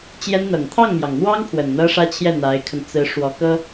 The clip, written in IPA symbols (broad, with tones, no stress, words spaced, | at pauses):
t͡ɕjɛ˥nn̪ɤ˨˩ŋ t̪ʰɑ˥˩ŋmjɑ˩ŋn̪wɑ˥ŋ pʰwə˨˩nn̪ɤ˥ʂä˥t͡ɕʰjɛ˥˩ n̪a˧˥ɪ̯kʰə˧n t͡sɹ̩˧˥ʂwɔ˧˥kɤ˥